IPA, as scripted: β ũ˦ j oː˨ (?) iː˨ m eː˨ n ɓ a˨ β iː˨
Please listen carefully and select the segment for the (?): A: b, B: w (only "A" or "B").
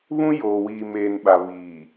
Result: B